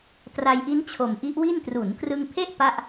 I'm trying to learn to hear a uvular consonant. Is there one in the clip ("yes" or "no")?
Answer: no